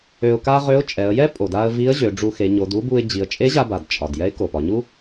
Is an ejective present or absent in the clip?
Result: present